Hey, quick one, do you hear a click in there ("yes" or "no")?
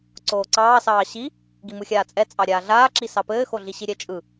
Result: yes